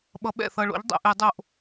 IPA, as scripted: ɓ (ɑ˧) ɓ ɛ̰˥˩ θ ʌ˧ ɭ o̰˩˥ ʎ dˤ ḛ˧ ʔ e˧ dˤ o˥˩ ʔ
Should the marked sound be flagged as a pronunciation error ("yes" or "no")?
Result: yes